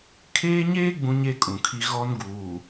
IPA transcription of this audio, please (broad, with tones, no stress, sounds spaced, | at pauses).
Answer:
kʰ eː˦ ɲ eː˦ ɡ͡b ũ˦ ɲ e˦ kʼ ũ˨ kʰ i˦ ɣ ɔ˦ n ɡ uː˨